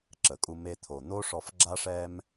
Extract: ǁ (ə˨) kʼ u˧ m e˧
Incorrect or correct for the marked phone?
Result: correct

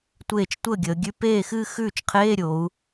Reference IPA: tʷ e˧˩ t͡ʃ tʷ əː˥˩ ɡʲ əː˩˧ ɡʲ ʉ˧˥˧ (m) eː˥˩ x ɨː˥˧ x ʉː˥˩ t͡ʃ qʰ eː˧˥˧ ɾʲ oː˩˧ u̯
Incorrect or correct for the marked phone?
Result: incorrect: p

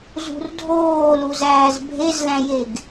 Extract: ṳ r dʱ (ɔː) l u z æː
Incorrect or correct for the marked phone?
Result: incorrect: oː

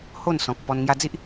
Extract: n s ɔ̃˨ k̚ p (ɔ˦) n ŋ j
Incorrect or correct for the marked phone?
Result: incorrect: ɔ˧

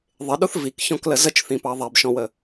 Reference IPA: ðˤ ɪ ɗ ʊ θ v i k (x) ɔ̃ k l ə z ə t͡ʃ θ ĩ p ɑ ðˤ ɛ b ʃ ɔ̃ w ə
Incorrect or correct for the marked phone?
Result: incorrect: ç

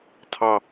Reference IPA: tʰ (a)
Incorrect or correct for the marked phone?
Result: incorrect: ɑ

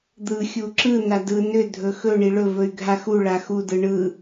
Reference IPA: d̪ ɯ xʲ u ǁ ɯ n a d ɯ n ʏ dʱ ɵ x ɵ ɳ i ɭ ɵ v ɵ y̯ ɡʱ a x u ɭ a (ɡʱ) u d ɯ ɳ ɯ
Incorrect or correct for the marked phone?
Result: incorrect: x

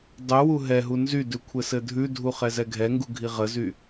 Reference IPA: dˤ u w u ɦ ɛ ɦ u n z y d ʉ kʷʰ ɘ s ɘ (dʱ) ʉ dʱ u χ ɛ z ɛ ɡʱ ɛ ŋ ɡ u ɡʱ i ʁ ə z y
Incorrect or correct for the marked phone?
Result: correct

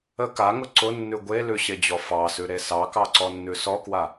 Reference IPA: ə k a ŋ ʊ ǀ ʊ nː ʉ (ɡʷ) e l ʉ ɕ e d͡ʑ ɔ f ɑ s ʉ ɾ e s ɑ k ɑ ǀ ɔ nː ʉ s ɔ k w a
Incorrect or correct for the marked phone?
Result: correct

